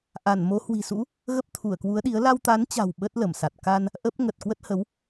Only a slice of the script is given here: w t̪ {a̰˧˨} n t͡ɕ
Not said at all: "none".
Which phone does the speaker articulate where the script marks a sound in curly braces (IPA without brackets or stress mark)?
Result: a˨˦